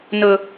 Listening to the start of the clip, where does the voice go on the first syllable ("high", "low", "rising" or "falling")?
high